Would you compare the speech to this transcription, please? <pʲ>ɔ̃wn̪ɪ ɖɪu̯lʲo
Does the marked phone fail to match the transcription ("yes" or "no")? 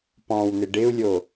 yes